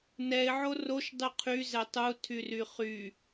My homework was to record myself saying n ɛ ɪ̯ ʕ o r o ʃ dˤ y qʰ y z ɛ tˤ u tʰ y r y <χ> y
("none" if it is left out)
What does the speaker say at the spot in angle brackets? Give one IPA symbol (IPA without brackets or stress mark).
χ